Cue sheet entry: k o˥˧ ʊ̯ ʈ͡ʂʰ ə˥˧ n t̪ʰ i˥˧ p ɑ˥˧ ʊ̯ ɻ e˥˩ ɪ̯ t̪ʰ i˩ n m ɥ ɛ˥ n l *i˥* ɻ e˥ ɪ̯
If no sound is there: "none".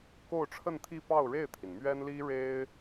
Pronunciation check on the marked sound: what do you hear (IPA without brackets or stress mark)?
i˥